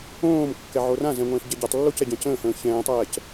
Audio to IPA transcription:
õː m kː ɛ ʕ o r ã z ɛ̃ ŋʷ ɛ̃ː ʃ ɟ ɛ ɟ a tˤ lː o c ɛ ɟ ɛ̃ c ə̃ː h ə̃ː ç ɛ̃ː tˤ ɛː c

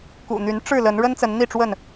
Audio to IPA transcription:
k ṵ˨˩ n̪ y˨˦ n ʈ͡ʂ ɻ̩˥˨ l ə˨˦ n ɻ ə˦ n t͡s ə˨˦ n n̪ i˥˨ ʈ͡ʂ w ə˥˨ n

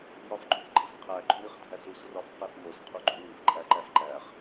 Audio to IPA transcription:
j ɒ f ɡ͡ǃ ũ f ɡ͡ǃ i f qʰ æ ɡ͡ǃ ũ ɾ i χ dʱ æ s u s r ɒ f q e f n̪ o s qʰ u ɡ͡ǃ ũ w i f ǃʼ æ ǃ æ f ǃ æ χ

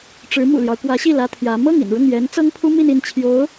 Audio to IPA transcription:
ʈ͡ʂ ɻ̩˧˥ m ṵ˨˩ l j ɑ˦ ʊ̯ k w ä˧˥ ɕ i˥˩ l ä˥ t̪ʰ j ä˧˥ m ɤ˥˩ ŋ ḭ˨˩ n ɻ ʊ˥˩ ŋ j ɛ˧˥ n t͡s ɤ˥ ŋ pʰ u˥ m i˥˧ n i˥˩ n t͡ɕʰ j o˧˥ ʊ̯

